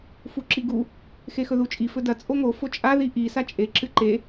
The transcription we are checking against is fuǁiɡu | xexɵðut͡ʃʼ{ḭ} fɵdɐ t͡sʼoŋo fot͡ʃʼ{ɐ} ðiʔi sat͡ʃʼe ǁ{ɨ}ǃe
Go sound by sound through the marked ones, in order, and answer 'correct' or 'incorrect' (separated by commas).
incorrect, incorrect, correct